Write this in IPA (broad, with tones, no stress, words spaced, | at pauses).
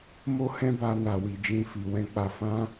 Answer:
mo˦hɛ̃˦ba˧ na˨wi˨d͡ʒĩ˧ fi˨wɛ̃˧k͡pa˧ fã˦